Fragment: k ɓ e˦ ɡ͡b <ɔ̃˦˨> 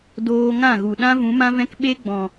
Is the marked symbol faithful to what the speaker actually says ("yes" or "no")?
no